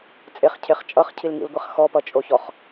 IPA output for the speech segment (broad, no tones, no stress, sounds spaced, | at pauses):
t͡sʼ e χ cʰ e χ t͡ʃʼ ʌ χ cʰ i l ŋ ḭ l ɡʷ e χ x ɔ p ʌ t͡ʃʼ o ç ɔ χ